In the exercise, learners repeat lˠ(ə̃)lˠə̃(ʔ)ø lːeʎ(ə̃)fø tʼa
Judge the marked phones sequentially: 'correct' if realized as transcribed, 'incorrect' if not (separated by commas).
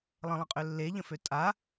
correct, incorrect, correct